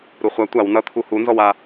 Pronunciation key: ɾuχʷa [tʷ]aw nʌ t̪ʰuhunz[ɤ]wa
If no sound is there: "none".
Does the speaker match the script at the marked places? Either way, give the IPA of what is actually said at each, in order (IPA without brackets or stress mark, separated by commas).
tʷ, ɔ